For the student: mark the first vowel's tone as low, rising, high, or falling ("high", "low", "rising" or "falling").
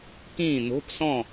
falling